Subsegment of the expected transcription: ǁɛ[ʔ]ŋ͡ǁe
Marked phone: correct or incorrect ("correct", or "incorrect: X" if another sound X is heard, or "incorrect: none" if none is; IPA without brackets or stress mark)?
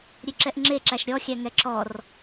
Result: correct